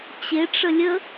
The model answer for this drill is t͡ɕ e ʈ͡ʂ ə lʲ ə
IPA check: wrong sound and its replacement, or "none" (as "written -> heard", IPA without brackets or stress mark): none